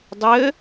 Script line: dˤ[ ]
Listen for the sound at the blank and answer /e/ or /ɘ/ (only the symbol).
ɘ